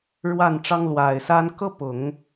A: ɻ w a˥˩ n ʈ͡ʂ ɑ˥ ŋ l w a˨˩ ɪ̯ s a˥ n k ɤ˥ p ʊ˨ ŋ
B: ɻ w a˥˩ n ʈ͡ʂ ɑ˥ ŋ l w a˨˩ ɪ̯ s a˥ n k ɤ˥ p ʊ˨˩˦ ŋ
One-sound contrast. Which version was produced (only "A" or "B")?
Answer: B